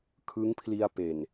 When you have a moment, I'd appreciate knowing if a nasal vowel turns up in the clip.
no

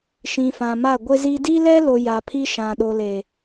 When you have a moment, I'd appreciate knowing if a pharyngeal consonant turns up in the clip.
no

